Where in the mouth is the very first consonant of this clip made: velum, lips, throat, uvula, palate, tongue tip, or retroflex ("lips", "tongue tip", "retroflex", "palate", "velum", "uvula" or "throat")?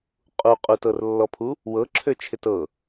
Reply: uvula